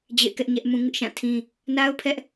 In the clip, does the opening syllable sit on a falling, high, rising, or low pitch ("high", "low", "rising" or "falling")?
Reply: falling